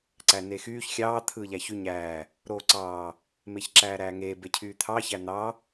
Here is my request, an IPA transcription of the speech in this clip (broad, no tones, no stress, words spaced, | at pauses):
ǀænexyːç xʲɑː t̪ʰɯːʎæçy ɲæː | ɾoːǀɑː | meçǁæːɾæːŋeː becʰyːt̪ʰɑ çæn̪ɑ